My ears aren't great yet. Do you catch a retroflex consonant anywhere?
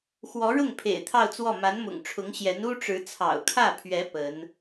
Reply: yes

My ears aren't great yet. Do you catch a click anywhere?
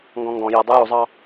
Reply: no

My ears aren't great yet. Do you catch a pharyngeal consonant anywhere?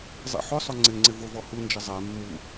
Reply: yes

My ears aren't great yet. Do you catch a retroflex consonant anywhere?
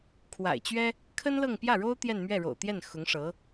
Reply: yes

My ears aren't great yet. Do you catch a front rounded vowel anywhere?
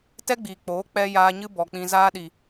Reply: no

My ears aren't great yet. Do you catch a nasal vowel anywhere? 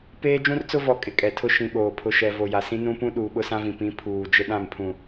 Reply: yes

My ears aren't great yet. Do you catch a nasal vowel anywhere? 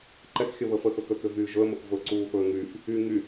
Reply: no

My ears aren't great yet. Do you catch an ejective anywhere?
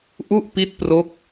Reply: no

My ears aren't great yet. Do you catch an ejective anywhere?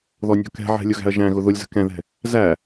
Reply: no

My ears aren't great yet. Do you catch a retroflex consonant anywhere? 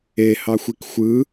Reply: no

